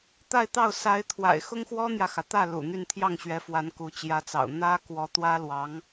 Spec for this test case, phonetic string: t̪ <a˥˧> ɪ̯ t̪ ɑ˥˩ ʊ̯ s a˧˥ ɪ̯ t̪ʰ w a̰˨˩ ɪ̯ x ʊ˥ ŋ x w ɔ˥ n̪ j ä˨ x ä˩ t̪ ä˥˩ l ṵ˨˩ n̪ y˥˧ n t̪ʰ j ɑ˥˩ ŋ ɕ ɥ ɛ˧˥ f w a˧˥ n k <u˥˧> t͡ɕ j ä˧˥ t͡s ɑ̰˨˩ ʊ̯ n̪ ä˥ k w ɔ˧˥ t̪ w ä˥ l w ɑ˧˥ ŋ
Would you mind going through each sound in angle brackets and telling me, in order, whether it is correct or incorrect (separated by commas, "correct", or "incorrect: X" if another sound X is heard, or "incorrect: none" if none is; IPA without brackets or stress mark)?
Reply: correct, incorrect: u˧˥